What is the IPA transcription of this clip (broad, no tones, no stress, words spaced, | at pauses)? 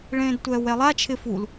ɭẽːdtʷɛːwɛlˠa t͡ʃʰɪ ful